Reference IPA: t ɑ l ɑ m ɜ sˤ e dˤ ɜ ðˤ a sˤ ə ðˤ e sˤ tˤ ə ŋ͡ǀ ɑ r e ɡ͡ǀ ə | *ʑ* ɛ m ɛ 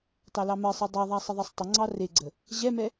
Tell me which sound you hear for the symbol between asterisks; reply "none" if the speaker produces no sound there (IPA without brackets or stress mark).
ʑ